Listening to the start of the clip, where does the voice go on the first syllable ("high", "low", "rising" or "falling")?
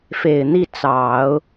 low